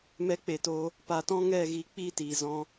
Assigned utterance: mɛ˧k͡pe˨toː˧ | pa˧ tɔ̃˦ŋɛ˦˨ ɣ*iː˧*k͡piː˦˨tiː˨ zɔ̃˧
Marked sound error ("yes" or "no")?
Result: no